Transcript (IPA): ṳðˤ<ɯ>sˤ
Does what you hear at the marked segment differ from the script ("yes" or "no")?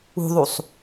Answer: yes